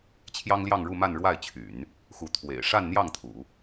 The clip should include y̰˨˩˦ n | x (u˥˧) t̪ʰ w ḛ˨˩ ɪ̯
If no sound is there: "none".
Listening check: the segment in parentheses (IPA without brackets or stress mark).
u˧˥